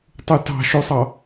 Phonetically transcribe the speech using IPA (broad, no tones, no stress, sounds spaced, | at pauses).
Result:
tˤ u t ɑ̤ ʃ o sˤ ɑ